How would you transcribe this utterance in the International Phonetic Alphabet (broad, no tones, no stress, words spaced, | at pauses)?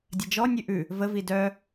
dʲɐd͡ʒɔnʲʉ ʔʉ | vəvi dœ